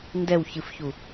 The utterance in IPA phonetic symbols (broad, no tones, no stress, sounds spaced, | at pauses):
n d ɛ w ç ɨ f ç u